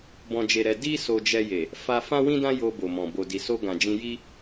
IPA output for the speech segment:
b ɔ̃˧ d͡ʒ e˧ ɾ ɛ˧ d i˦ s o˧ d͡ʒ ɛ˧ j e˨ | f a˧ f ã˦ w ĩ˦ d ã˦ j o˧ b o˨ m ɔ̃˨ b o˨ d i˨ s o˧ ɡ ã˨ d͡ʒ ĩ˧ j i˦

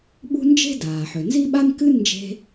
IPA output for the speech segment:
ɓ ṳ˥ n d͡ʒ e̤˥ d aː˩ ħ ø˩ n z i˥ ɓ a˥ n k ɨ˥ n d͡ʒ e̤˧

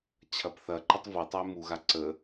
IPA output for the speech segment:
t͡ɕʰ ɐ p θ ɐ ǃ ə tˤ v e tˤ e m u ɣ a ǀ ə

